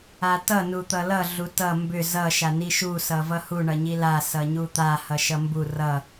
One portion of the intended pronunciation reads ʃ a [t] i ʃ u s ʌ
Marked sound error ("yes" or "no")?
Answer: yes